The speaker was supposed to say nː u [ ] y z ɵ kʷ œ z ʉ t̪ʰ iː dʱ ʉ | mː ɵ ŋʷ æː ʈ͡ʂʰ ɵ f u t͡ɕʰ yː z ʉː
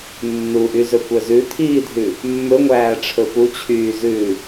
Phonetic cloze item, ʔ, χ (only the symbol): ʔ